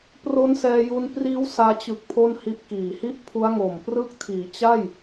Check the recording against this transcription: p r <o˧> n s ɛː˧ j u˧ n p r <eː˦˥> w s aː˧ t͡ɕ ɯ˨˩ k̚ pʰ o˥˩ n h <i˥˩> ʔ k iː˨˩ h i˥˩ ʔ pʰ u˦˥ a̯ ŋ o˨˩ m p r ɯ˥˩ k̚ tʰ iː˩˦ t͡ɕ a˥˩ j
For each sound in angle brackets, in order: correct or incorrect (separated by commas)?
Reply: incorrect, incorrect, incorrect